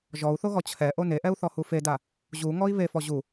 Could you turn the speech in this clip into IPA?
ʒ ɔ u̯ θ o ɣ ɔ t͡ɕʰ ɛ ʔ o n e ʔ ɛ u̯ θ ɔ h u f e d a | ʑ u ŋ ɔ i̯ β e f ɔ ʑ u

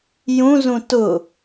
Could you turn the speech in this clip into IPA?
j ũ z ũ t ʊ

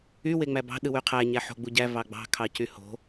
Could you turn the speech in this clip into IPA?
y w e ŋ͡m æ b ɑ̤ ɗ ɯ w y qʰ æ ɲ æ ħ o̤ ɡ͡b u ɟ æ v ɑ ɡ͡b ɑ̤ kʰ ɑ c y h o̤

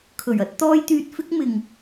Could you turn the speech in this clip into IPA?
kʰ ɵ˨˩ ɥ ɐ˨˥ t̚ t̪ ɔː˥ j t̪ yː˧ t̚ f ɪ˥ k̚ m ɪ˨ ŋ

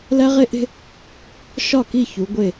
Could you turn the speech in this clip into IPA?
l æ˦ ʁ e˦ ʔ e̤˦ | ʃ ɒ˦˨ k i˦˨ ç u˨˦ ɡʷ e˦˨

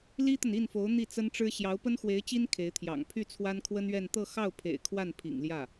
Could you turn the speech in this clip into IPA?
l i˥ t̪ ə˨ n i˥˩ n f o˧˥ ʊ̯ n̪ i˥˩ t͡s ə˥ n ʈ͡ʂ ɻ̩˥ ɕ j ɑ˧˥ ʊ̯ p ə˥ n x w e˧˥ ɪ̯ t͡ɕ i˥ n kʰ e˧˥ ɪ̯ t̪ʰ j ɑ̰˨˩ ŋ pʰ y˥˩ t͡sʰ w a˥ n kʰ w ə˥ n ɥ ɛ˥˧ n t̪ ɤ˥˧ x ɑ˥˩ ʊ̯ pʰ ḛ˨˩ ɪ̯ kʰ w a˥˩ n pʰ ḭ˨˩ ŋ l j ä˥˩

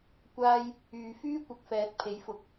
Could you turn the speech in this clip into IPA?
kʷ aː˥ j | yː˨ f yː˥ kʷ ɐ˨˥ k̚ f ɛː˨˥ t̚ pʰ e˨˥ j f ʊ˨˥ k̚

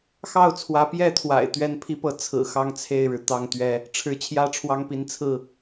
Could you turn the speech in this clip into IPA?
x ɑ˥˨ ʊ̯ t͡sʰ w ä˨˦ p j ɛ˥˨ t̪ʰ w a̰˨˩ ɪ̯ t̪ ɥ ɛ˦ n pʰ i˦ p ɤ˨˦ t͡sʰ ɹ̩˨˩ x ɑ˦ ŋ t͡sʰ e˥˨ ɪ̯ ɻ ɻ̩˩ t̪ ɑ˥˨ ŋ t̪ ɥ ɛ˦ | ʈ͡ʂʰ ɻ̩˨˦ t͡ɕʰ j ä˥˨ ʈ͡ʂʰ w ɑ˦ ŋ p i˨˦ n t͡sʰ ɹ̩˥˨

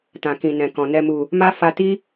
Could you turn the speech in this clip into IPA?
t ã˨ k ĩ˨ n ɛ̃˨ k ɔ̃˨ n ɛ˨ m u˨ | m a˦ f a˧ t i˦

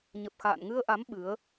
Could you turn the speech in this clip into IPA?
ɲ ə˨˩ p̚ x a̰ː˧˨ n ŋ ɨ˧ ə̯ ʔ a˨˦ m ɓ ɨ˨˦ ə̯

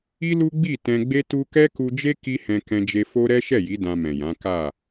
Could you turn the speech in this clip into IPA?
i˦ l u˦ ɡ͡b i˦˨ t ɛ̃˧ ɡ͡b e˦ t u˦ k ɛ˦ k u˧ d͡ʒ e˦ k i˦ h ɛ̃˧ k ɛ̃˧ d͡ʒ e˧ f o˦ ɾ ɛ˦ ʃ ɛ˦˨ j i˨˦ d ã˧ m ɛ̃˨ j ã˨˦ k a˦˨

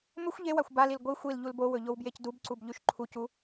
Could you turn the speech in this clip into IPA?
m ɵ xʷ ʎ e w a xʷ b a l i l ɡʷ i xʷ i l ʎ u l b o w ɵ ʎ o w b j e c d u b ǀ u b ʎ ʉ ʃ ǃʰ u c u

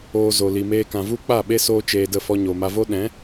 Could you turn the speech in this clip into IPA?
oː˧ z o˨ l i˨ m eː˧ k ã˨ v u˦ k͡p a˦˨ ɓ e˦ s oː˦ t͡ʃ eː˧ d ə˦˨ f ɔ˧ ɲ o˨ m a˧ v o˦ ɗ ɛ̃˨˦

